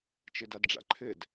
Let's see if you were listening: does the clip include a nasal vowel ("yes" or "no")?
no